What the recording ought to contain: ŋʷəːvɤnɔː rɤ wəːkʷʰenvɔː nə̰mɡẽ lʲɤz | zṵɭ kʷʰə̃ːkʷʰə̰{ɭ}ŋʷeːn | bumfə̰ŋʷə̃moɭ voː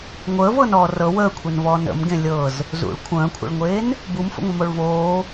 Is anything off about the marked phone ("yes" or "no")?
no